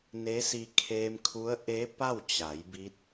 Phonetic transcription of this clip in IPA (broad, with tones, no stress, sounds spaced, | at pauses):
n e˧˥ s i˧ kʰ eː˧ m kʰ u˧˥ ə̯ ʔ e˧˥ p a˥˨ w t͡ɕ a˩˧ j b i˧˥ t̚